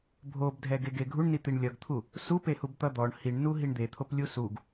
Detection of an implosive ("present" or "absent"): absent